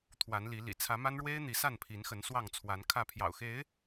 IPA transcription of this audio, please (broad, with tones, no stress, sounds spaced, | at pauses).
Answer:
t̪ʰ w a˨˦ n l i˨˦ l ḭ˨˩ t͡sʰ ä˨˦ m a˦ n ɻ w e˦ ɪ̯ n̪ i˨˦ s a˥˨ n pʰ i˨˦ n x ə˨˦ n s w ɑ˥˨ ŋ t͡sʰ w a˨˦ n kʰ ä˥˨ pʰ j ɑ̰˨˩ ʊ̯ x e˨˦ ɪ̯